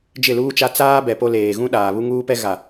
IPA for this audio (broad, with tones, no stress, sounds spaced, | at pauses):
d͡ʒ ɪ˦˨ l uː˦ t͡ʃ a˦ t͡s aː˦ b ɛ˨ p o˦ l eː˨ ɣ ũ˦ ɗ aː˨ β u˦ ŋ uː˦ p ɛ˦ ɣ a˨